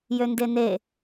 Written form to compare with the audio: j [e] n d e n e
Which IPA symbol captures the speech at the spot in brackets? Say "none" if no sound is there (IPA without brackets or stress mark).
ø